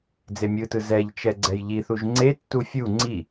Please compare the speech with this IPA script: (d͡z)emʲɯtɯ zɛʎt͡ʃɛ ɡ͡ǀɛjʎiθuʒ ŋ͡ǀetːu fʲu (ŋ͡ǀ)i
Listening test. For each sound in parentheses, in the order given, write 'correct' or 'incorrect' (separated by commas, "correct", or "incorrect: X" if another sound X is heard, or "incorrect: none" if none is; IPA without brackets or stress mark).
correct, correct